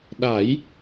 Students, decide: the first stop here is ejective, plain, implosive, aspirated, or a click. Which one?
implosive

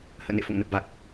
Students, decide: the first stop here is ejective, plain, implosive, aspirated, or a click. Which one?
plain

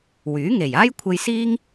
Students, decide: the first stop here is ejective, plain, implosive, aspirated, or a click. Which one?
aspirated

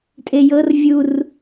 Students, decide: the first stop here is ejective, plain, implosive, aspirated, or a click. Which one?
ejective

